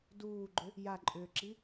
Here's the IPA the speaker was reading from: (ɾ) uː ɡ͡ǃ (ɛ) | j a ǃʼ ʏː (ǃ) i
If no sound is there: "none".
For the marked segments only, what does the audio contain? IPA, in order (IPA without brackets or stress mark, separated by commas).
d, ʏ, ǁ